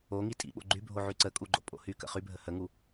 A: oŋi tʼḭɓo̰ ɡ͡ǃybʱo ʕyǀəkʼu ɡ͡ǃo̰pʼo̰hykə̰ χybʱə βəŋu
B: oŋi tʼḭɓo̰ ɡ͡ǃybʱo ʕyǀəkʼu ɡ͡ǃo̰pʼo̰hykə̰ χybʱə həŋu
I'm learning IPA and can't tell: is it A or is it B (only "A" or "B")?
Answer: B